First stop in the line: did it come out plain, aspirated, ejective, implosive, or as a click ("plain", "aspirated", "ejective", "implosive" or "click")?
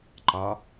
click